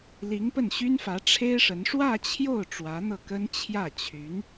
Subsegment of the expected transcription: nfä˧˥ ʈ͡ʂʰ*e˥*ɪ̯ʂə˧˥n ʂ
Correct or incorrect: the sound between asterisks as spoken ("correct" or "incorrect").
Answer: correct